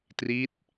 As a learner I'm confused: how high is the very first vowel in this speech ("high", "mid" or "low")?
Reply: high